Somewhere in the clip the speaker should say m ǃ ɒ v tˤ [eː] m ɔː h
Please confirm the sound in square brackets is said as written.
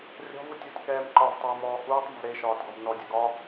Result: yes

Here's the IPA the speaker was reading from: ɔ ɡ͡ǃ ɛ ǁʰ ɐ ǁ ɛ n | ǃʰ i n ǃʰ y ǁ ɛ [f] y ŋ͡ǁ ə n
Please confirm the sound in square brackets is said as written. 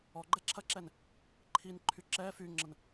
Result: yes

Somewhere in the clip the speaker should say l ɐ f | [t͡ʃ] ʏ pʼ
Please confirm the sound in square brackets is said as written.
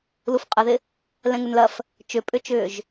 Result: yes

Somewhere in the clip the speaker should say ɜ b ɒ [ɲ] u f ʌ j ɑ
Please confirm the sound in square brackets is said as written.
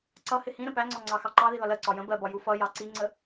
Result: no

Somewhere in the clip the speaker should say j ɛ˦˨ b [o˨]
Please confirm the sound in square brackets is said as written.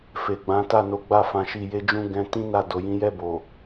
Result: yes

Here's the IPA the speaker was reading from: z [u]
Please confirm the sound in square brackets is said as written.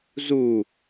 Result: yes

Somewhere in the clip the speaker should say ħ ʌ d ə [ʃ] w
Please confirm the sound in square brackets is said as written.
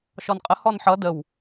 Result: no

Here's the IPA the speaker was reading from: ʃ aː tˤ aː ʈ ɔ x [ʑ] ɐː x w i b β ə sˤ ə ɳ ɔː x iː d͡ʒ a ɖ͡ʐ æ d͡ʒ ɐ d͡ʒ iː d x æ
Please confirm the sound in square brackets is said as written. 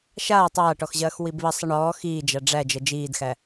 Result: yes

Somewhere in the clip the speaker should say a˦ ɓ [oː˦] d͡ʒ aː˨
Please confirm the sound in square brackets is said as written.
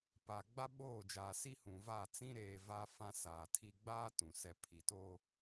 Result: no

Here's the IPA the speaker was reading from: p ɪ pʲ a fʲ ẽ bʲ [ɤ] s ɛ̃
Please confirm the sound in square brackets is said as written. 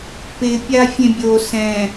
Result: no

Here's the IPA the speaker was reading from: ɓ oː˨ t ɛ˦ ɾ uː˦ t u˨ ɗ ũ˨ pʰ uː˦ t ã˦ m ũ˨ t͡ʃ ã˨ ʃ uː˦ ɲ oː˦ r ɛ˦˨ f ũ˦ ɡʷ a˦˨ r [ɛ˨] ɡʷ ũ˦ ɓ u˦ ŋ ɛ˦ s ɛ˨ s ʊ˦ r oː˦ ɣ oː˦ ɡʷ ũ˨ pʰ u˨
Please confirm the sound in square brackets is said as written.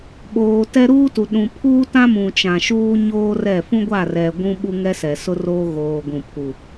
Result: yes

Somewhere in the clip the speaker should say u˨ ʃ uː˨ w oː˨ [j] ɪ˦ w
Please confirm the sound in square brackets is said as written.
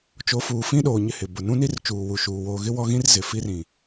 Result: no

